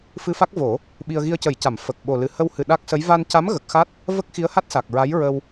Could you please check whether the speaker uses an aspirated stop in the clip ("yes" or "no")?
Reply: no